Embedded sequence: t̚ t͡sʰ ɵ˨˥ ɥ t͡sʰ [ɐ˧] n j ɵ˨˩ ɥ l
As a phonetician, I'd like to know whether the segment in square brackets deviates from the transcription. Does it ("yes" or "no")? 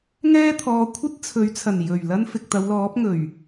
yes